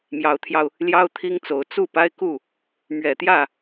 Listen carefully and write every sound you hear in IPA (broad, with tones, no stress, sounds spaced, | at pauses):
m j ɑ˨˦ ʊ̯ t̪ʰ j ɑ˧ ʊ̯ | l j ɑ˦ ʊ̯ t̪ʰ i˦ ŋ t͡s o˨˦ ʊ̯ t͡s u˥˨ p a˦ ɪ̯ k u˥˨ | m ɥ ɛ˨˩ t̪ j ä˥˨